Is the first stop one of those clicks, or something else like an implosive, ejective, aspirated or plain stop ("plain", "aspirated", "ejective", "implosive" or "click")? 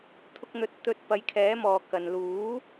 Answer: aspirated